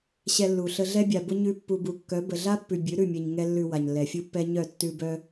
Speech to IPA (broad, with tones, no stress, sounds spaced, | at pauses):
ɕ ɛ˧ lː u˨ ɬ ə˧ ɮ ɛ˦ bʲ a˨ b ʊ˦ ɲ ʉ˦ pː u˦ b u˧ kː œ˨˦ b ə˨ ɮ a˦ pː ʉ˨ bʲ ʉ˨˦ ɾ ʉ˦˨ mʲ ɛ˨ ɲ ŋ ɛ˧ lː ʉ˨ w a˨ ɲ lː ɛ˨ fʲ u˦ pː ɛ˦ ɲ œ˦˨ tː ʉ˧ b œ˦